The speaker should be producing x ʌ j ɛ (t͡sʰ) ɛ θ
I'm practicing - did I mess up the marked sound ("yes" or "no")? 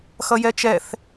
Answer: yes